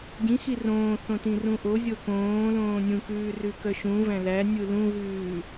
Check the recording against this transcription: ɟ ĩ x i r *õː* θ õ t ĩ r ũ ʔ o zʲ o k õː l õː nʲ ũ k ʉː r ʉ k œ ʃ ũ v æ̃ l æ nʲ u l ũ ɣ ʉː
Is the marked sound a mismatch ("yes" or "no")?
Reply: no